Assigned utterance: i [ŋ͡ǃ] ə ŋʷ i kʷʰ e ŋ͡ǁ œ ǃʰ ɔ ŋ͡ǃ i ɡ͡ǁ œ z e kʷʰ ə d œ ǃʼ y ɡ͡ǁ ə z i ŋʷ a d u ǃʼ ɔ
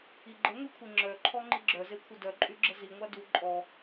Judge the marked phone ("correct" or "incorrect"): incorrect